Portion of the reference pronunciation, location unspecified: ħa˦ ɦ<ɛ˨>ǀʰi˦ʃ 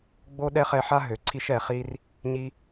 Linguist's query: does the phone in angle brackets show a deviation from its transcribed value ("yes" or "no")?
yes